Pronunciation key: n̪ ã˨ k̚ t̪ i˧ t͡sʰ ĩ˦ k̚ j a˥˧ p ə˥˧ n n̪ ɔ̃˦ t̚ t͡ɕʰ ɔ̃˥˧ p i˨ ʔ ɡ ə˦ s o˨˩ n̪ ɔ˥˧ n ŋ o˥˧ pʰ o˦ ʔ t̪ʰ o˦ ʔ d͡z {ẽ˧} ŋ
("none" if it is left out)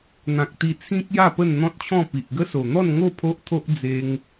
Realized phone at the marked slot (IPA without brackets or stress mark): e˧